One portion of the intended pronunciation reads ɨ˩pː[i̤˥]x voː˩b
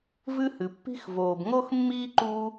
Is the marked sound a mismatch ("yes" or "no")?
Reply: no